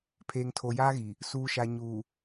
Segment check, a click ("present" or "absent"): absent